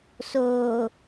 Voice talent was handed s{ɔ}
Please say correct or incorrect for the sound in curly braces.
incorrect